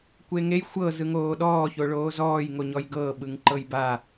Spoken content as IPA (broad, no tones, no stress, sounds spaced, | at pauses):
kʷ e ŋ e j xʷ ɤ z ɯ ŋ oː ɗ ɔː ç o ɭ oː z ɔː j ŋ o ɲ ɔ j ɡ ɤː ɓ ɯ ŋ ǃ ɤ j b a